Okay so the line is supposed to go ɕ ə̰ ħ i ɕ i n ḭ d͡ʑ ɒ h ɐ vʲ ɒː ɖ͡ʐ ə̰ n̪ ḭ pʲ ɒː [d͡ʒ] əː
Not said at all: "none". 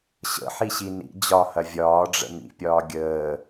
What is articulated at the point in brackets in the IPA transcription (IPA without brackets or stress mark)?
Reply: ɡʲ